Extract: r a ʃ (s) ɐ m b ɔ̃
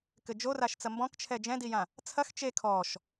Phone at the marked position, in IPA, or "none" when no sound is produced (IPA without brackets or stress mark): t͡s